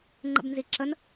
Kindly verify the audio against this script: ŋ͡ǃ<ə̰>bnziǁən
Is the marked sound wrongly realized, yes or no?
no